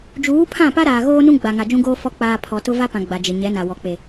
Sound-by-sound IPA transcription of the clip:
d͡ʒ uː˨˦ pʰ ã˦˨ p a˦ ɾ aː˨ ɣ oː˦ n ũ˦ ɡ͡b a˨ ŋ a˨ d͡ʒ ũ˦ ɡ oː˦ f ɔ˦ k͡p aː˨ pʰ ɔ˨ t ʊ˦ v a˦ p ã˨ ɡ͡b a˨ d͡ʒ ɪ˨ ɲ ɛ˨˦ n a˨ w ɔ˨ k͡p e˨

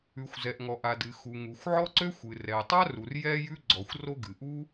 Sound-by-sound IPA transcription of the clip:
ʉ˩ xʷ z ɛ˩ ʔ ŋ ɔ˩ ʔ a˩ d ɨ˩ x u˩ ŋ u˩ xʷ ʕ ɔ˥ ǀ ø˥ xʷ ɨ˩ r ɛ˩ tˤ a˥ r u˩ r j ɛ˥ j ʉ˥ ɡ͡ǀ ɔ˩ xʷ r o˥ ɡ ɨ˩ ʔ u˥

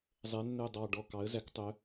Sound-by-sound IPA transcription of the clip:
zˤ ɛ˩˧ nː œ˨˩ dˤ ɑ˨˩ ɖ ɔ˨˩ k ɑ˩˧ ə̯ z æ˩˧ k tˤ œ˩˧

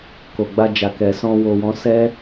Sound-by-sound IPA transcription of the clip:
k o˨ ɡ͡b a˧ d͡ʒ a˨ k ɛ˨ s ɔ̃˧ w o˨ w ɔ̃˨˦ s ɛ˦

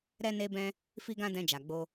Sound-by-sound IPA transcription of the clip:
ɾ ɛ˧ n e˧ b ɛ̃˧ | f i˦ ɡ ã˦ d ɛ̃˧ d͡ʒ a˨ ɡ͡b o˧

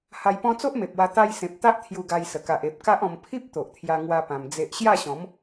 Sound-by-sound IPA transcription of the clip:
h a˧ j p ɔ̃˦ t͡s o˦ ʔ m e˨ p̚ w a˧ t̪ a˧ j s ẽ˨ p̚ t̪ a˦ ʔ t̪ʰ j u˧ ɡ a˧ j s ə˨˩ k a˨ ʔ e˨ p̚ k a˦ ʔ ɔ̃˧ m pʰ i˦ p̚ t̪ o˨ ʔ t̪ʰ j a˧ ŋ w a˦ p ã˧ m d͡z e˦ ʔ ɕ j a˥˧ ɕ ɔ̃˨˦ m

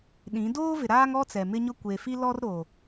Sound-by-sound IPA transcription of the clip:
ɗ ĩ˨˦ d oː˦ v ɪ˨ ɾ aː˦ ŋ ɔ˦ t͡s ɛ˨ m ɪ˦ ɲ ʊ˦ kʷ e˨ f i˦ l ɔ˦ r ɾ o˨

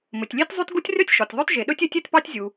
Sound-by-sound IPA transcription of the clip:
m ɵ˩ tʲ lʲ e˥ t zˤ y˥ t ɡ u˥ tʲ r ø˥ tʲ ʃ ɔ˩ tʲ ðˤ ø˥ t ʒ e˩ ɗ ɵ˥ tʲ ø˥ tʲ e˥ t p ɑ˥ tʲ zʲ u˩

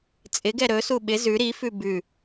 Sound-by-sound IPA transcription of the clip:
t͡sʼ ɪ ɡ ɛ ɾ ɵ s u ɓ ɪ z ʉ ɾ i f ʉ b ʉ

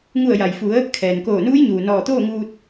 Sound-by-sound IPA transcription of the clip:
ŋ u˧˩ ə̯ j a˩ j f u˩˧ ə̯ | kʰ ɛː˩ n k oː˧˩ n uː˧˥ j ɲ uː˩ n ɔː˧˩ t̪ oː˥˨ ŋ uː˧ t̚

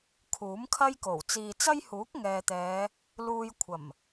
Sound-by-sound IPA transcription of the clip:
kʰ uː˨˥ m kʰ ɐ˥ j k o˨˩ w t͡s iː˨ t͡s ɐ˥ j h uː˨˥ k̚ ŋ ɛː˨ t̪ ɛː˨˧ | l uː˧ j kʷʰ ɐ˨˩ m

